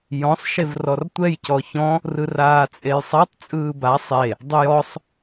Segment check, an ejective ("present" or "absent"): present